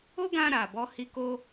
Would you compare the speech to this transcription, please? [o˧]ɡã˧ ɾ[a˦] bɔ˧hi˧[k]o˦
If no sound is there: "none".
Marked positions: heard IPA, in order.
o˦, a˨, k

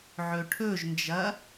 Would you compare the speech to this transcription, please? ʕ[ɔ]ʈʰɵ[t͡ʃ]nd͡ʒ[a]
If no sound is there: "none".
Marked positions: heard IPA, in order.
ɵ, ʒ, ɐ

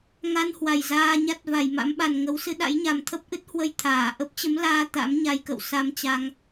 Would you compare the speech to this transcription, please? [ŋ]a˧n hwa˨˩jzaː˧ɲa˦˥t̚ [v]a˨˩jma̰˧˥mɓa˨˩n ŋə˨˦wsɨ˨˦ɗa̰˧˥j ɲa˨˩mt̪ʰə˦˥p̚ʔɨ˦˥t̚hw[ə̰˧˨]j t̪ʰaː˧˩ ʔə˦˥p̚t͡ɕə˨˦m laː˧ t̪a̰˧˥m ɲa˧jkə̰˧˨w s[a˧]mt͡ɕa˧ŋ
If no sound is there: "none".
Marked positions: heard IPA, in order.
ŋ, v, ə˧, a˧

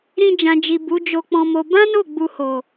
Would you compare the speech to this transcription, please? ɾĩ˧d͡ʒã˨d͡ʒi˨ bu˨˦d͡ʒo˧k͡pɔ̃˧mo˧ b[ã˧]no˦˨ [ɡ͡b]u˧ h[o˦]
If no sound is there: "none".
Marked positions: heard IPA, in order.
ã˦, ɡ͡b, o˨

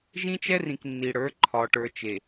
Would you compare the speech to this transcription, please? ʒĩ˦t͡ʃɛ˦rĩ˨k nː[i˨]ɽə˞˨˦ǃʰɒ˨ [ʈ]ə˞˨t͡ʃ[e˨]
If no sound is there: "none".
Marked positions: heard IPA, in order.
i˨, ʈ, e˨

